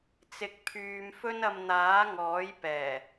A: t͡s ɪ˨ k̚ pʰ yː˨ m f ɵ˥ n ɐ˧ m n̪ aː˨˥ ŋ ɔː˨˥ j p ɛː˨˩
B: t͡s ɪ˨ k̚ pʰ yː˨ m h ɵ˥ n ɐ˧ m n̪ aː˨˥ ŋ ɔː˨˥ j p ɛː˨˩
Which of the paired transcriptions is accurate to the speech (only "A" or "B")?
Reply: A